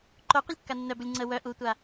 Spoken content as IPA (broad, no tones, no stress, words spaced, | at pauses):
ǃo qʷəlʲkːanːœbulʲ ŋ͡ǀə wœ ʔutʷa